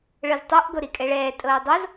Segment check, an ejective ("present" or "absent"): present